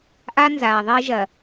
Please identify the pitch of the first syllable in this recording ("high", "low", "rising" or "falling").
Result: high